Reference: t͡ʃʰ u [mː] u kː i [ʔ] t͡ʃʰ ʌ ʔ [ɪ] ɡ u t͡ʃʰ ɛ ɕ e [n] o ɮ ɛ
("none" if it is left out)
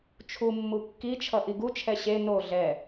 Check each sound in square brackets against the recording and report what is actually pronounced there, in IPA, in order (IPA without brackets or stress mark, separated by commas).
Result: mː, none, i, n